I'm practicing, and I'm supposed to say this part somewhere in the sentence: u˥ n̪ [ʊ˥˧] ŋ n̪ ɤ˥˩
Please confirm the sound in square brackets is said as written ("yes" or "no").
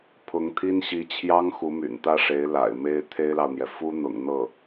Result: no